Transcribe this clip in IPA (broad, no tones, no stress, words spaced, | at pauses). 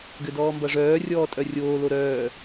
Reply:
ɡʏdɔːmbɐʐœː rʲɔːtʼœrʲoː loɾœː